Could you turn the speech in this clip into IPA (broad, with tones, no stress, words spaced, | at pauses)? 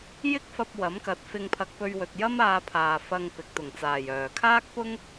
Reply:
jɪ˥k̚fɐ˧p̚ wɐ˨˥mkɐ˨˥t̚ fɪ˧ŋpʰɐ˧k̚pɵ˧ɥwɵ˨t̚ jɐ˥maː˧pʰaː˨ fɐ˧ŋpɪ˨k̚ t̪ʊ˨˩ŋt͡saː˨˩jœː˨˩ kʰaː˥k̚pʊ˥ŋ